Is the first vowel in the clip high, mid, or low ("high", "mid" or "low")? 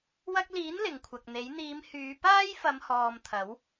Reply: low